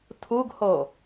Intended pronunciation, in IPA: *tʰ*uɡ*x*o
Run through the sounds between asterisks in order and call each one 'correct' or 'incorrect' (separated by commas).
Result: correct, incorrect